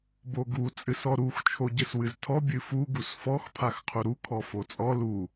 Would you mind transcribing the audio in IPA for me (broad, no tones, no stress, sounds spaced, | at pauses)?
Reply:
b o ɡ u t͡sʼ ɨ s ɔ ɾ u x t͡ʃʰ o ɟ ɨ s w ɨ z tʰ ɔ bʲ ɨ f u ɡ u s f ɔ x pʰ a x qʰ u ɾ u kʰ ɔ f o t͡sʼ ɔ l u